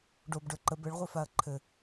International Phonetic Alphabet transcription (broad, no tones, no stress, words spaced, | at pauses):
ɖobɖə˞ ǃə bɘɭʁʷifaɐ̯ ǃʰɘ